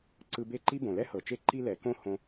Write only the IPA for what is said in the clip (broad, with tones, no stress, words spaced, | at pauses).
ǀɯ˧be˦˨ǃi˦ bõ˨lɛ˦hɤ˨t͡ʃe˦ ǃi˦lɛ˨˦ kõ˦ hõ˧